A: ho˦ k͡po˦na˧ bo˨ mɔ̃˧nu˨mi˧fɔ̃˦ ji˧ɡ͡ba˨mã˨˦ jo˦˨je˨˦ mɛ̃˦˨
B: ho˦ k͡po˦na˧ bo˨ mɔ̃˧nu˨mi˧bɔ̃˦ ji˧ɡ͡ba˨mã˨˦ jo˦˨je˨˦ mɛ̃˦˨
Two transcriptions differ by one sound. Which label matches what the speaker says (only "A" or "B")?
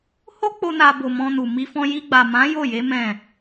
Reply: A